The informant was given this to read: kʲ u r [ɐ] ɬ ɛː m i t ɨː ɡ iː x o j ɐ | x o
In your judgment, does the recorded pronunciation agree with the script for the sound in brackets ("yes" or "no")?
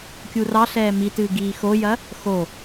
no